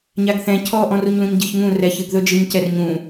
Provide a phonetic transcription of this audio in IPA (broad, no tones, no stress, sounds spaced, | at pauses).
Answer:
ɲ a ɡ θ ɛ̃ cʰ ɔ ʔ ɔ̃ r u ɲ l ũ ɲ ɟ ɨ ç ŋ ũ r ɛ ç ɨ ɡ ð ɵ d͡ʒ ɨ ɲ c ɛ r ɲ ũ